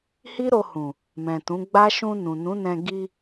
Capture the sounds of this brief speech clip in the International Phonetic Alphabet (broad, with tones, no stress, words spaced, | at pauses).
hi˦ɾo˧hũ˨ | mɛ̃˨tũ˨˦ ɡ͡ba˦ ʃũ˧ nũ˨nũ˨˦nɛ̃˧ ɡi˧